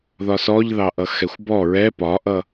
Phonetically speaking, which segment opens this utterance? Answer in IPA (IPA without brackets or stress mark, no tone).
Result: ð